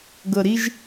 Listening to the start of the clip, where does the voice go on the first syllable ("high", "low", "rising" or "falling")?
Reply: low